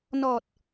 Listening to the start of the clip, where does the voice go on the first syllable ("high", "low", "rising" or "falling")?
low